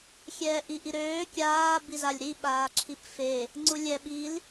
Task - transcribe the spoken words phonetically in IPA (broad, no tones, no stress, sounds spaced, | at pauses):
xʲ ɛː ʔ i ʔ i ɾ øː kʲ aː b i z a lʲ ɾ i ɓ aː ǁʰ i p f e | ŋ͡ǀ u lʲ ɛ ɓ i l